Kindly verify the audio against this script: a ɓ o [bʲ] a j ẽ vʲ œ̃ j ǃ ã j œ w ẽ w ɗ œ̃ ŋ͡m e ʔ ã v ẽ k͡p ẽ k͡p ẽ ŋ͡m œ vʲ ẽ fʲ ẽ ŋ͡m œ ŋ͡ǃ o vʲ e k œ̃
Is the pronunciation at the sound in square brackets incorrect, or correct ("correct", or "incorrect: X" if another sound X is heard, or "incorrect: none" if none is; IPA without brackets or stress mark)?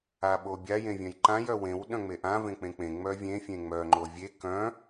correct